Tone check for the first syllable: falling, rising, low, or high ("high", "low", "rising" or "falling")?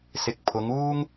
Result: low